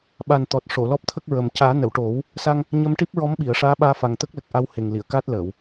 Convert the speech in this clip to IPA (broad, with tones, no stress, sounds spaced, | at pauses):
ɓ a˨˩ n t̪ ɔ˨˩ t̚ ʂ o˨˩˨ l ɔ˦˥ p̚ t̪ʰ ə˦˥ k̚ ɹ ə˨˩ m c aː˨˩˦ n ə˨˩˨ w ʈ o˨˩˦ w | s a˧ ŋ | ɲ ə˧ m ʈ i˦˥ p̚ ɹ ɔ˧˥ m ɓ i˨˩˨ ə̯ ʂ aː˧˥ ɓ aː˧ f a˨˩ ŋ t̪ ə˦˥ k̚ l ə˨˩ k̚ ʔ a˧ w h e˨˩ ŋ l i˨˩˨ ə̯ k aː˦˥ t̚ l əː˨˩˨ w